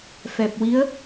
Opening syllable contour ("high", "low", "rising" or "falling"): low